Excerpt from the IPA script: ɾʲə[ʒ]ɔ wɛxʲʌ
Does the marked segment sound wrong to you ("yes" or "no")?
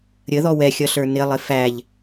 yes